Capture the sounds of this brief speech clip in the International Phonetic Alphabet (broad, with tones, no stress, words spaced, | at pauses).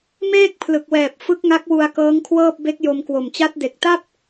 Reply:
meː˥˩k̚ pʰlɯ˨˩k̚wɛː˨˩p̚ fɯ˦˥k̚ŋa˦˥k̚wu˧a̯ kɤː˦˥ŋkʰwɤː˥˩p̚ be˦˥k̚jo˧mkwo˨˩mt͡ɕa˦˥t̚ de˨˩k̚ta˥˩p̚